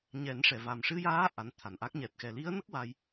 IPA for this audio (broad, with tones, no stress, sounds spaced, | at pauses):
ɲ ɛ˨˩˦ n ʂ ɛ˨˩˨ v a˨˩ m ʂ ɨ˧ j aː˧˥ ʔ a˧˥ n t̪ʰ a˨˩ n ʔ a˦˥ k̚ ɲ ɛ˨˩ t̚ x ɛ˨˩ l i˧˥ ə̯ n ə˦˥ k̚ w a˧ j